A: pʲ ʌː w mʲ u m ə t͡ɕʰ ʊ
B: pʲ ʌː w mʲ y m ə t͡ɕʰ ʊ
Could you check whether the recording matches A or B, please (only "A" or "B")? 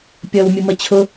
A